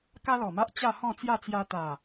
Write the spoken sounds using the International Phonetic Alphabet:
k a˦ l ɔ˨˩ m a˦ ʔ t͡ɕ a˥˧ h ɔ̃˥˧ t͡s j a˥˧ t͡s j a˧ t̪ a˨˩

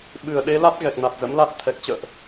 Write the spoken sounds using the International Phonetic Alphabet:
ɓ ɨ˧˩ ə̯ ɗ e˨˦ l a˦˥ t̚ ɣ ɛ˨˩ k̚ n a˨˩ t̚ z ə̰˧˥ m l a˦˥ t̚ t̪ʰ ɛ˨˩ k̚ t͡ɕ ə̰ː˧˨ ʔ

